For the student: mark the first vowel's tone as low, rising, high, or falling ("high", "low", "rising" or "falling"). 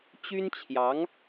high